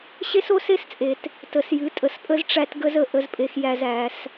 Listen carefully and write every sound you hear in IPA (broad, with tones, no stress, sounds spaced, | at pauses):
ɕ e˦ s o˦ s e˦ s t͡sʼ e˨ t | t ə˨ s j ɨ˨˦ tʼ ə˨ s pʼ ə˦ z ʈ͡ʂ æ˦ t ɡ ə˦ z ə˨ ʔ ə˦ z pʼ e˦ x j æ˦ z æ˨˦ s